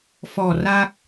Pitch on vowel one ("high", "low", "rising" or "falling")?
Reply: low